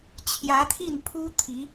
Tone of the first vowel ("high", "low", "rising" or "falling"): rising